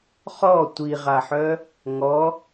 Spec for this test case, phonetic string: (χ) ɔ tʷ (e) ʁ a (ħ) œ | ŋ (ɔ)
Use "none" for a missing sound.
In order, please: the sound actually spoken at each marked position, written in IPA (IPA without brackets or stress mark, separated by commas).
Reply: χ, i, ħ, ɔ